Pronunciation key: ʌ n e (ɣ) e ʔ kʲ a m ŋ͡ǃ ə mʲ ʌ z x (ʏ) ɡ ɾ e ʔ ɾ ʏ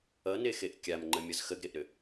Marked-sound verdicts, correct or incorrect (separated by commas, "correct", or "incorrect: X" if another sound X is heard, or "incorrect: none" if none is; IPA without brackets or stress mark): incorrect: x, incorrect: ə